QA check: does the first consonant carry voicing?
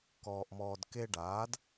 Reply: no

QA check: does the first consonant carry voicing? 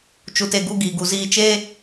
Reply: no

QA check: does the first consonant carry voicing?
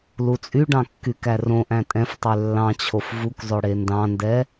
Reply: yes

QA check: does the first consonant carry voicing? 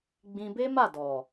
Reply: yes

